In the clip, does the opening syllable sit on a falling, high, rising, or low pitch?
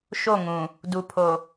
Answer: falling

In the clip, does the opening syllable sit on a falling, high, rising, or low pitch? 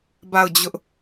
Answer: falling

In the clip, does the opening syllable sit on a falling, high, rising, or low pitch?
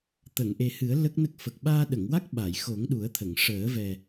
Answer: low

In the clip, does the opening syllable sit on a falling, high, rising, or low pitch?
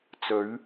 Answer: rising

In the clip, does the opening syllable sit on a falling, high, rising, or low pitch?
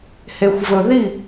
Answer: low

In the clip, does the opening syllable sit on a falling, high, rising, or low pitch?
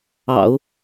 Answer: low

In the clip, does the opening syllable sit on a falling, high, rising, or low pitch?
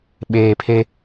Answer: low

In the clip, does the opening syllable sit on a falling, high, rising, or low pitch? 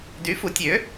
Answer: rising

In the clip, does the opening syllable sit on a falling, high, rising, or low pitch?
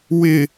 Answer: falling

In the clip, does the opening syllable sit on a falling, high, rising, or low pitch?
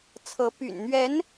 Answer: rising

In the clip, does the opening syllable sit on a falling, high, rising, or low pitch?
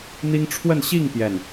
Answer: high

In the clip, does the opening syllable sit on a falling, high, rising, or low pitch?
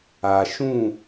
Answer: low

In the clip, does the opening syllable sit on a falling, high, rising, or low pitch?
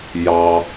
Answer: low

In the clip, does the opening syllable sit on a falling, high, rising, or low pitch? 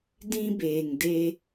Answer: high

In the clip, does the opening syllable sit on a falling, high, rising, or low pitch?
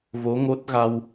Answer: rising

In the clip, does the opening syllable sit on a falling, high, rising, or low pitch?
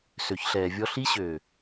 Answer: low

